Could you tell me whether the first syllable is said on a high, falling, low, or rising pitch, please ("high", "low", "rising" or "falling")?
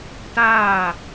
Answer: falling